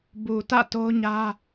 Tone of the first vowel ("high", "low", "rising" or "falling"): low